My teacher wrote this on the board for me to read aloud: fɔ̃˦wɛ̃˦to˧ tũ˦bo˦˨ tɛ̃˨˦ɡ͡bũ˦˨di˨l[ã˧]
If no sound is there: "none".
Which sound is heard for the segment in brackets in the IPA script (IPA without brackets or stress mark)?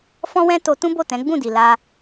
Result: a˧